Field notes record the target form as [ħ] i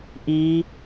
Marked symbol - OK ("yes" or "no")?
no